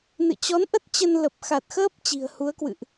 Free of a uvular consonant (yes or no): yes